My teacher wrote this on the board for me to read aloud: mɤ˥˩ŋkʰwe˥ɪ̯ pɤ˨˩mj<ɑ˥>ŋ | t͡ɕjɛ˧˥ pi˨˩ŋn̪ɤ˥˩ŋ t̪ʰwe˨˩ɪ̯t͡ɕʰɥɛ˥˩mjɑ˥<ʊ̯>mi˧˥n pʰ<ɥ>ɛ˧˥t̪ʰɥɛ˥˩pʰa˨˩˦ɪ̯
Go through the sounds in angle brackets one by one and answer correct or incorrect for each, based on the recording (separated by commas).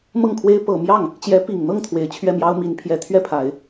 incorrect, correct, incorrect